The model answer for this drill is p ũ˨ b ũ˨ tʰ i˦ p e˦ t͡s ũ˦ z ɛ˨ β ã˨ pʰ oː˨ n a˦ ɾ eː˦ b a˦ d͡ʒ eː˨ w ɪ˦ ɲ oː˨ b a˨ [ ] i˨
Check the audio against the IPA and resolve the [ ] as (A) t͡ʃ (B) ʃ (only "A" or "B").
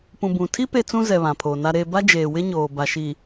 B